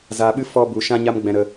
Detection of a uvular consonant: absent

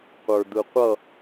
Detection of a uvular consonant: present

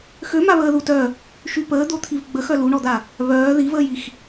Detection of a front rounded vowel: present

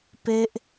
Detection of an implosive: absent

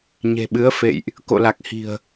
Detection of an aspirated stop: absent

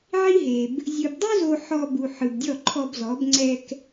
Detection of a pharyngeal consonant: present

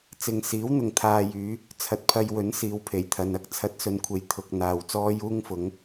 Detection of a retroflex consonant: absent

